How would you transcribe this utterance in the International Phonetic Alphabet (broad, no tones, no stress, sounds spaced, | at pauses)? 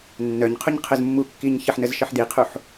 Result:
nː œ ɲ qʰ u ɲ qʰ ə z mː u kː i ɲ ç ə ħ n ə z ʃ ə ħ d i qʰ u ħ